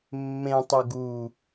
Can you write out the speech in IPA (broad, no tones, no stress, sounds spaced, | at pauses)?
mː ẽ tˤ ɵ ɡ u